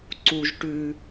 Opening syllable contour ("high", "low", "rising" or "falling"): high